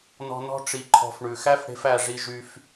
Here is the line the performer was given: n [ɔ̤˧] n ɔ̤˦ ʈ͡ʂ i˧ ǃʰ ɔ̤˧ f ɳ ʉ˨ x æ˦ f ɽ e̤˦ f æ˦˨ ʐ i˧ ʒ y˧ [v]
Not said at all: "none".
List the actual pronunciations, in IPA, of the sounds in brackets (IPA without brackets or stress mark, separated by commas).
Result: ɔ̤˧, f